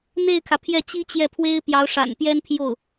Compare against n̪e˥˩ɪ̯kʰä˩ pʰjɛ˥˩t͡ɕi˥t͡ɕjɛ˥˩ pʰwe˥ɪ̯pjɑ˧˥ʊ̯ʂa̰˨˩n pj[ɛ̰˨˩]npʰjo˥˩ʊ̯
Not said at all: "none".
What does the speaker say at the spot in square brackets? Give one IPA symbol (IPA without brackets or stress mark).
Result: ɛ˥